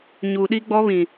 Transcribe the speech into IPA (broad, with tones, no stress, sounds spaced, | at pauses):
ɲ u˨ ɗ i˦ ɡ͡b ɔ˦ β ĩ˨